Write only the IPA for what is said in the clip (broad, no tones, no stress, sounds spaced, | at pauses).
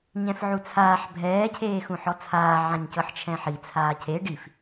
ɲ ɛ̃ f ʕ u t͡sʰ aː ħ bʱ ɛː cʰ eː x ũ ħ ɔ t͡sʰ aː ʕ ã ɲ c ɤ ħ t͡ʃʰ ɛ̃ ħ i t͡sʰ aː cʰ e ɖ i f